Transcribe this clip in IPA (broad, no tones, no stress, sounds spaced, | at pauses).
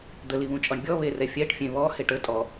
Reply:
d̪ ə l i β ũ t͡ʃʼ ɔ ɳ bʲ ɔ β e r ɛ fʲ ɛ ʈ fʲ ẽ β ɔ h e ʈ ə tʼ ɔ